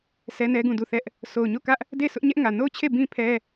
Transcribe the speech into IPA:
s ɛ˦ n ɛ˦ ɡ ũ˦˨ d u˦˨ θ ɛ˦ ʔ | sʰ o˨ ʊ̯ ɲ o˦˨ k ä˦ ʔ | d e˦˨ s ʊ˦ ʔ ɲ ɛ˦ ʔ ŋ ä˨ n o˦˨ ʊ̯ t͡ɕʰ e˦˨ b ĩ˦ pʰ ɛ˦

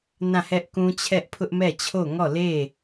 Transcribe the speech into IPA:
n ã˦˨ h ɛ˦ ʔ k ũ˦ t͡ɕʰ ɛ˦ ʔ pʰ ʊ˦ ʔ m ɛ˦˨ t͡ɕʰ o˦˨ ŋ ɔ˦˨ l e˦˨

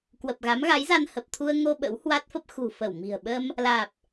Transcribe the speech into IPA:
k w ə˨˩ p̚ ɣ a˨˦ m ɣ a˨˦ j z a˧ n h ə˨˩ p̚ t̪ʰ u˧ ə̯ ŋ o˧ ɓ ə̰˧˥ w h w a˦˥ t̚ f ə˦˥ p̚ x ṳ˨˩ f ə˧˩ w m i̤˨˩ ə̯ ɓ ə˧ m | l aː˨˩ p̚

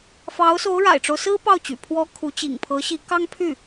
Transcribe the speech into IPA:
f ɑ˧˥ ʊ̯ s o˧˥ ʊ̯ ɻ a̰˨˩ ɪ̯ ʈ͡ʂ o˦ ʊ̯ s ɹ̩˥ p ɑ˥˩ ʊ̯ t͡ɕ y̰˨˩ pʰ w ɔ˥ kʰ u˧˥ t͡ɕ ḭ˨˩ ŋ pʰ ɤ˧˥ ɕ i˧˥ k ɑ˥ ŋ pʰ y˥˩

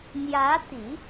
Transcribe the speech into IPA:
n̪ j ä˧˥ t̪ i˨˩˦

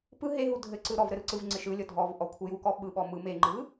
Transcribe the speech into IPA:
p ɯ ɦ e ɦ u dʱ ɘ ǀ ɯ ɾ ɔ v ɾ ɘ ɾ ɯ ǀ ɯ v ŋ͡ǀ ɪ ʃ ɯ lʲ ɔ dʱ ɔ v ʔ ɔ kʷʰ ɘ j u k ɔ ɓ ɯ ɓ ɔ m ɯ m e ŋ͡ǃ ɯ

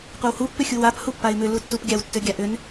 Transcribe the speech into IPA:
qʷ a w h u pː ʏ xʲ u w a p h u pː a ɪ̯ m ʏ l u tː u p ɡʲ a w tː ʏ ɡʲ a ʔ ʏ n

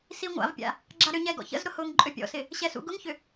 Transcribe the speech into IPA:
s i ŋʷ a̰ v pʲ a̰ | ɡ͡ǁ a ɾ ʏ ɲ ɛ ɡ ɔ̰ ç ə̰ z ɾ ʊ h ʊː ŋ ǃʼ ø pʲ ɔ̰ s ɪ | ɕ ɛ s ṵ ɡ ʊ ŋ ç ʏ

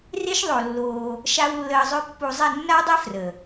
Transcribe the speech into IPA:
r e˦ ʃ ðˤ o˧ lː oː˧ | ʃ a˦ w lː əː˧ zˤ ø˦ pː u˧ zˤ ɛ˦˨ nː a˦ w dˤ ɛ˦ f r ə˨

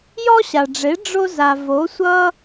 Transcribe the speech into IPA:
j ɔ˥ ɕ a˩ ɖ͡ʐ e˩˥ ɖ͡ʐ o˥ z a˩ v o˩˥ sʷ ʌ˥

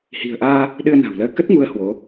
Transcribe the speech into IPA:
h i̤˨˩ ə̯ ʔ aː˧ | ɗ ɨ˧ ə̯ n a̤˨˩ w l əː˧ k ə˦˥ t̚ ŋ u˨˦ ə̯ h w o˨˦

